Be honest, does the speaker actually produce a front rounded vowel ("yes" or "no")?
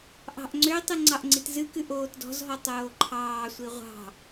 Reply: yes